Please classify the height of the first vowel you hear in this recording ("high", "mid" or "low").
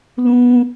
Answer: high